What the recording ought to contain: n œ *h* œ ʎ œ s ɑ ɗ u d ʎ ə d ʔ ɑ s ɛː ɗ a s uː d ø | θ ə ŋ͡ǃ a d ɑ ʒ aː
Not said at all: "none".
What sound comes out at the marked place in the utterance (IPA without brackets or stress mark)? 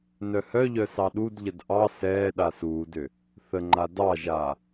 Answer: h